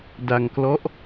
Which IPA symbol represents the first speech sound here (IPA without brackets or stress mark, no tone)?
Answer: d